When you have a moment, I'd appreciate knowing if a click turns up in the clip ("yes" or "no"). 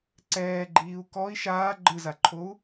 yes